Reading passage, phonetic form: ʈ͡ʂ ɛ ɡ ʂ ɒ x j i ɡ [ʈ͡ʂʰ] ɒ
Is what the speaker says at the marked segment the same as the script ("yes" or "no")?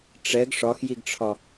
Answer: yes